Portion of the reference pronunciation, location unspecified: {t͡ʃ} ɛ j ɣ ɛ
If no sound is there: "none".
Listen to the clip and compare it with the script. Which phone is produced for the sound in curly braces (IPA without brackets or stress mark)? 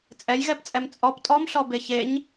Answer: t͡sʼ